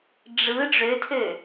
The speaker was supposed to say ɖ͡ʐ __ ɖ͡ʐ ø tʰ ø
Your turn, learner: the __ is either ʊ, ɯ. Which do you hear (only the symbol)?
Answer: ɯ